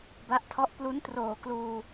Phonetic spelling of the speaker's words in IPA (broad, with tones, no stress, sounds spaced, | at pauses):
b a˦˥ ʔ tʰ ɔ˦˥ ʔ p l u˦˥ n t r oː˨˩ k l uː˧